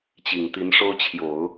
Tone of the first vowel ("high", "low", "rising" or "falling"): low